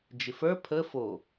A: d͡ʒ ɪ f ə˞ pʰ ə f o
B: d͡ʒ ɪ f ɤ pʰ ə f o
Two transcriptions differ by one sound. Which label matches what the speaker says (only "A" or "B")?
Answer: A